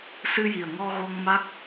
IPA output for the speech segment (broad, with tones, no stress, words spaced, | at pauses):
sɨ˧ji˨˩ə̯ŋɔ˧ ɣo˧ŋma˦˥k̚